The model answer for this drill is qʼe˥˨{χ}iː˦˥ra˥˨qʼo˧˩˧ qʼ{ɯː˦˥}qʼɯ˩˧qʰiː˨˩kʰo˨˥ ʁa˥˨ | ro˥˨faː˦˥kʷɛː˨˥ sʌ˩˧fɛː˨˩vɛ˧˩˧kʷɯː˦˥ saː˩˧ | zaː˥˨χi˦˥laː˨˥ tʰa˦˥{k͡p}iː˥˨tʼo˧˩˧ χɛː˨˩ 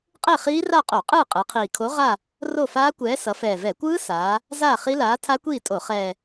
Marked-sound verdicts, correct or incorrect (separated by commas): correct, incorrect, incorrect